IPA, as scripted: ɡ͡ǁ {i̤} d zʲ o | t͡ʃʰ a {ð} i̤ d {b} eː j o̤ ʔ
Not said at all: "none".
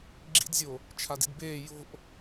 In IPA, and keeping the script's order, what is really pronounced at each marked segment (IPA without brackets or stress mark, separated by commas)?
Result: ḭ, d, b